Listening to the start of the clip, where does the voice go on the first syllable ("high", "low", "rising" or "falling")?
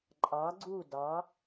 rising